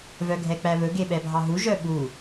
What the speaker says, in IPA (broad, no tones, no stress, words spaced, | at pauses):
vœɡʱɛk͡pæβɵ ɡeɓɛbʱɑɦu ʒœɓu